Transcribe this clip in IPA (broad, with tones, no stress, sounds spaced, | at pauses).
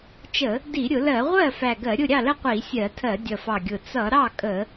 t͡ʃ ə˧˩˧ | d i˧˩˧ ɾʲ ʊ˧˩˧ l ɜ˧˩˧ ʁʷ ɜ˥˩ f æ˨˩ ɡ ɜ˧˩˧ ɾʲ ʊ˥˩ ɾʲ ɑ˥˩ l ə˥˩ qʷ i˧˩˧ sʲ ɜ˧˩˧ tʰ ɜ˧˩˧ dʲ ʌ˨˩ f ɑ˨˩ ɡʲ ʊ˨˩ t͡s ʌ˧˩˧ ɾ ɑ˥˩ kʼ ə˧˩˧